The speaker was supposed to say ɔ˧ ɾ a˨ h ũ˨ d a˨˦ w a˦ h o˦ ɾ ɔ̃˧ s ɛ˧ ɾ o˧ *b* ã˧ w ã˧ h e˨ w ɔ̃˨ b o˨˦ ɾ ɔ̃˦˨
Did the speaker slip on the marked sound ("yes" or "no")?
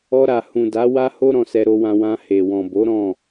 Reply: yes